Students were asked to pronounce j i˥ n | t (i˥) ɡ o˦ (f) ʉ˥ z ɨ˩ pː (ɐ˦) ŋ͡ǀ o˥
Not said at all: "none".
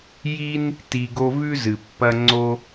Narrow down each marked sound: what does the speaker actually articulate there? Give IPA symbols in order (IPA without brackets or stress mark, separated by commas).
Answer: i˨, v, ɐ˦